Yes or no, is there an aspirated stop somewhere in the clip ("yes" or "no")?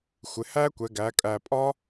no